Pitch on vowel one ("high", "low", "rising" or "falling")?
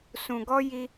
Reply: low